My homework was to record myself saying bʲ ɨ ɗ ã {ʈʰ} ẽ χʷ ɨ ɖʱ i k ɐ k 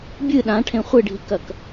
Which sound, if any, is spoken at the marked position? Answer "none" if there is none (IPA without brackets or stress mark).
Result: ʈʰ